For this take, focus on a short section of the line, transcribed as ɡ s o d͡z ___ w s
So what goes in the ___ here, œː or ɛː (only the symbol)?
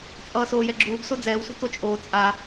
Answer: ɛː